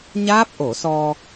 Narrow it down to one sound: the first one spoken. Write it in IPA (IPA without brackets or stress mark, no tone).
ɲ